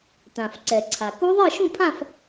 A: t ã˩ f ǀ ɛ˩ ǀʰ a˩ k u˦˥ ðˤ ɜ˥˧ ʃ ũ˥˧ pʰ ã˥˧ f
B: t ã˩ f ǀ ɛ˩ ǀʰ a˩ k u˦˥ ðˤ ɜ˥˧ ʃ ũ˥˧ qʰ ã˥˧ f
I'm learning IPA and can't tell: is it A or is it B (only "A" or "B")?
A